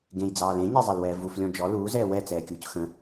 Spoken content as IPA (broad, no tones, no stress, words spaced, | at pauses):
ɡẽjd͡zɑːl ẽɲezˤɛlwɛː vuflʲɔ̃ d͡ʒɔ luːzɛː wɛt͡sɛːkʲuːc xə̃